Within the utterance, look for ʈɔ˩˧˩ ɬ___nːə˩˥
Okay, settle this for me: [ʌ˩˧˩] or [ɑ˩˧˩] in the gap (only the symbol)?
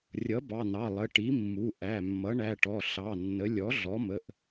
ɑ˩˧˩